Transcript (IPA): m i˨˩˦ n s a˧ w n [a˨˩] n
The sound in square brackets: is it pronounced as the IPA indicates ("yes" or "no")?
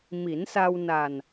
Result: yes